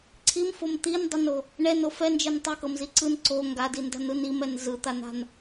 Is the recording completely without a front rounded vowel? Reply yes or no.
yes